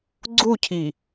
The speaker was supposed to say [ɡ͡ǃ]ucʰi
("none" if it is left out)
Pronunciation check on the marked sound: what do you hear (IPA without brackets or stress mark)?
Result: ɡ͡ǀ